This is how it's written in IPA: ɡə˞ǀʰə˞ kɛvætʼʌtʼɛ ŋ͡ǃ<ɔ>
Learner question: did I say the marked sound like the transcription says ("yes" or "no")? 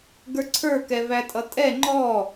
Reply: yes